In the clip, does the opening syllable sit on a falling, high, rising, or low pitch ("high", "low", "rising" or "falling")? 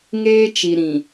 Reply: high